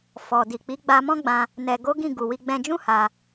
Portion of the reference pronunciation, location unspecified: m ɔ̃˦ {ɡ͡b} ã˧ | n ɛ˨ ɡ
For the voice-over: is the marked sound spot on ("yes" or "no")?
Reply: yes